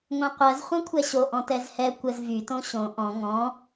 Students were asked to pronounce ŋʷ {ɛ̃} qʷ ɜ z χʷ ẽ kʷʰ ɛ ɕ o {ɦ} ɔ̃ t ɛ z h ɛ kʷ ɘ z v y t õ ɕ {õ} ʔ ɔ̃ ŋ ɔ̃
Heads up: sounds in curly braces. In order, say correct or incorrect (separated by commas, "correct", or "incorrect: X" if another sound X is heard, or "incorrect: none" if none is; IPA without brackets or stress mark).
incorrect: ẽ, incorrect: ʔ, correct